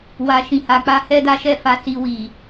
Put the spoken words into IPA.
wa˨ʃĩ˨ha˨k͡pa˧ hɛ˦da˦ʃɛ˦˨fa˧ si˧wi˨

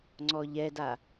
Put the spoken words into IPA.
ŋ͡ǀɔʎɛda

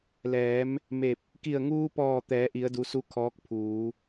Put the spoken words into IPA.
lɛː˩˧m | me˧˩p̚ | ki˧˩ə̯ŋuː˧pɔː˧˩ t̪ɛː˩˧ʔi˩˧ə̯du˩˧ su˧˥ kʰɔː˧˥k̚pʰuː˩˧

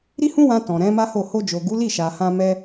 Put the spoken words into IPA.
ɾi˦hũ˦wã˧ tɔ̃˨ɾɛ̃˨˦ma˦ho˦˨ ho˧d͡ʒo˨ ɡu˨˦ li˦˨ʃa˨hã˧mɛ˧

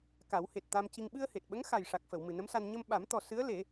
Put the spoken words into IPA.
ka˨˩˦whe˨˩t̚t̪a˧mci˧ŋ ɓɨ˧ə̯he˨˩t̚ɓə˧˥ŋ xa˨˩jʂa˨˩k̚fə˨˩˨w mɨ˨˩nə˧˥msa˧n ɲə˧mɓa˨˩˦mt̪ɔ˨˩ sɨ˧˥ə̯le˨˩˦

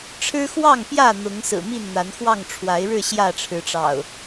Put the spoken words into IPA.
ʈ͡ʂʰɻ̩˦xwɑ˥˨ŋpjä˥˨ n̪ʊ˨˦ŋsɹ̩˨˩ mi˥˨nn̪a˨˦nxwɑ˥˨ŋ ʈ͡ʂʰwa˨˦ɪ̯ɻɻ̩˥˨ ɕjä˥˨ʈ͡ʂʰɻ̩˨˦ʈ͡ʂɑ̰˨˩ʊ̯

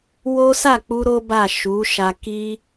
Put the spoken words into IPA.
wo˦ sa˦˨k͡pu˧ ɾo˦ba˦˨ ʃu˨˦ ʃa˧ ki˦

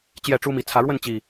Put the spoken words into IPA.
t͡ɕjɛ˥˨ʈ͡ʂu˦mi˨˦ t͡sʰä˨˦ɻwə˥˨n t͡ɕi˨˩

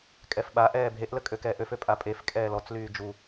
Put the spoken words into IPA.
kʼɛfɓaʔɛː bʱeʔlə kʼøkɛːʔøfø pʼapʼefkʼɛː lɔt͡slyː d͡ʒu

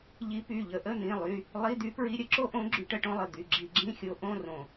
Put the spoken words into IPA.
ʎi˧˥py˩˧˩ʎə˧˥ʔə˧˥˧ n̪ĩ˩˧˩lˠy˩˧˩ | lˠi˧˥˧d̪y˧˥pɹi˧˥˧ ɾʲə˧˥ǁo˥ʔõ˧˥ ɡ͡ǁy˧˥ʈə˧˥˧ʈõ˥lˠə˩˧˩ d̪y˩˧˩ɡ͡ǁi˧˩˧ɡ͡ǁĩ˧˥˧xʲo˧˥ ʔõ˧˥˧rõ˧˩˧

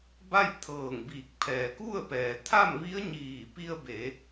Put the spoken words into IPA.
ba˥˨jt̪ʰɤː˧˩ŋbiː˧˩k̚ pʰɛː˩ku˥˨ə̯pɛː˩ t̪ʰa˥˨mʋi˧˥ə̯ɲiː˧˩ pi˧ə̯be˩˧

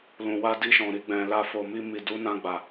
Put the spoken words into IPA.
lũ˨wa˧di˧ʃɔ̃˨ ɾi˧ɡ͡bɛ̃˨ la˧fo˨mi˧mi˨ du˨˦nã˧ɡ͡ba˨

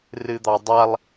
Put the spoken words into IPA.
rɨd̪ɑdˤalˠ

